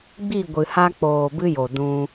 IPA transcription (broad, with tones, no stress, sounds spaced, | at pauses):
ɡ͡b i˦˨ ɡʷ ɨ˨ h a˧ k͡p oː˨ b ɨ˦ j o˨ d ũ˧